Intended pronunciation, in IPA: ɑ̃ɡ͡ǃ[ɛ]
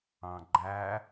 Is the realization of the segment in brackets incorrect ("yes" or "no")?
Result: yes